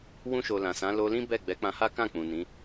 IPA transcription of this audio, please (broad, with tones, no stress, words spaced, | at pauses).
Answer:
wũ˧ʃo˨ lã˨sã˨˦ lo˧lĩ˦ bɛ˦˨ɡ͡bɛ˨˦ k͡pã˧ha˦ kã˦˨k͡pũ˨ nĩ˨˦